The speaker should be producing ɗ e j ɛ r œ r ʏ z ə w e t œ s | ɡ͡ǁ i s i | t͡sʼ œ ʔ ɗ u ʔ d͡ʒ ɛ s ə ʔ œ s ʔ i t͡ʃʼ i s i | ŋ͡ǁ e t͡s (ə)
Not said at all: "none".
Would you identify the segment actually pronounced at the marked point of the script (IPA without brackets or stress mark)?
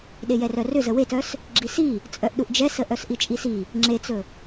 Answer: ɵ